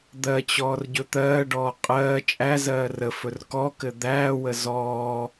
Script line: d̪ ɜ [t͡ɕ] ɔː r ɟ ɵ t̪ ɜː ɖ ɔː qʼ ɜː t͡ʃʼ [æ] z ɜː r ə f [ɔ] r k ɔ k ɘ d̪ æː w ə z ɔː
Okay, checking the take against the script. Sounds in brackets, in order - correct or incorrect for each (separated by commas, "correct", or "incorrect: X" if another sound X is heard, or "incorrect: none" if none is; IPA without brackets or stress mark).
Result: correct, correct, incorrect: ɵ